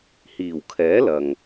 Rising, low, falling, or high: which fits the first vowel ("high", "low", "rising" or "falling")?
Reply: low